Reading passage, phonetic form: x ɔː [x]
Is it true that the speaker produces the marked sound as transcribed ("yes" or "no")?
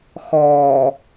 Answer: no